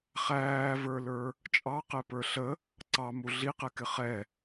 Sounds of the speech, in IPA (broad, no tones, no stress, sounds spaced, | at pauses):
χ æː v ə˞ l ə˞ | t͡ʃʼ ɑ q ɛ p ə˞ ɬ ə | ǀ ɑ m u ɮ i q ɛ k ɪ χ ɛ